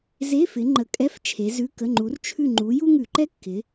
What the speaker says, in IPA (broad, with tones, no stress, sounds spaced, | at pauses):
z e˧˥˧ f ɪ˨˦ ŋ͡ǃ ə˨˦ kʼ ɛ˧˥˧ f t͡ʃʰ e˨˦ z ʉ˧˥˧ k ə˧˥˧ ŋ͡ǃ u˨˦ r t͡ʃʰ ʉ˦˨ ŋ͡ǃ u˨˦ j u˥ ŋ ʉ˧˩˧ ǃ ɛ˥ kː ɪ˨˦